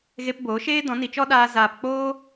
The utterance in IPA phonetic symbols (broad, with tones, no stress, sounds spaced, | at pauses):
ɣ e˧ p b oː˨˦ ʃ eː˦ d ɔ̃˨˦ n i˨ t͡ʃ ɔ˦ ɗ aː˧ z aː˨ p k͡p oː˦